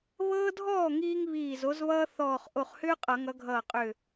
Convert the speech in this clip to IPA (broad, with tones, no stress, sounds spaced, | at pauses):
β ɤː˦ dʱ ɔː˥˩ ŋ iː˦ ŋ β iː˧˩ z o˨˦ z β ʌː˦ θ ɔː˧˩ χ ʔ o˧˩ χ h ʏː˦ qʼ ʌ˨˩˦ ŋ ʌ˨˦ ɡʱ ʌː˧˩ qʼ ʏː˧˩